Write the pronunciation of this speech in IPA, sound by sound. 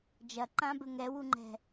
d͡ʒ ɐ ǃ ã b ɘ ŋ ɛ w u ŋ͡ǃ ɛ̤

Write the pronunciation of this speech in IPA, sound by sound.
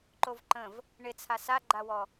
ǃ o v ǃ ə̃ v | ɳ ɪ t͡sʰ a s a ɡ͡ǃ a w ɔ

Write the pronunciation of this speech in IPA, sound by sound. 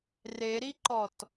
r e ɾ i ǃ ɔ t

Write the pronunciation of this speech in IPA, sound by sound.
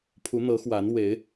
pʰ u˨˦ n̪ ɤ˨˦ x w a˨˦ n w e˨˦ ɪ̯

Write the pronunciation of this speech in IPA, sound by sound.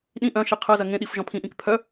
ɗ ĩ ʔ œ̃ ʃ i qʰ ɜ z ɐ ŋ ẽ ɗ i f ʒ ɔ̃ pʰ ĩ ʔ ĩ k pʰ œ

